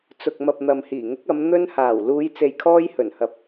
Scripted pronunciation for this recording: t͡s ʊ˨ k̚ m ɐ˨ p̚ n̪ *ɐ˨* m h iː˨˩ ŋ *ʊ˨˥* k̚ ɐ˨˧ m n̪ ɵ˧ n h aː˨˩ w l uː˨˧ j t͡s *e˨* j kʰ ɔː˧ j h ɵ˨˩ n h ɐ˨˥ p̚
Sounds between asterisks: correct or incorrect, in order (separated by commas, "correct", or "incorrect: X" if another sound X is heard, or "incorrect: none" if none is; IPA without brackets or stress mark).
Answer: correct, correct, correct